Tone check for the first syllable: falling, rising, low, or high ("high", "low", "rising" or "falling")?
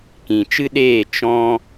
low